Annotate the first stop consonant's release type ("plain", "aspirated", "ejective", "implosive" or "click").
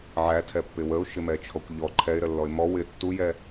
aspirated